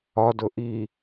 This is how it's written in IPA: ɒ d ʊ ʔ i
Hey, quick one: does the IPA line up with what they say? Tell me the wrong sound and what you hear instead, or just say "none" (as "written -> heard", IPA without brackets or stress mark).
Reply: none